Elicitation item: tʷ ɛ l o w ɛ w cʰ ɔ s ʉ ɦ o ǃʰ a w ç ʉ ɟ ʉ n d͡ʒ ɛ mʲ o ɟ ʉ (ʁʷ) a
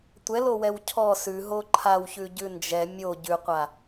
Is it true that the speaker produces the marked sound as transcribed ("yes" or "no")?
no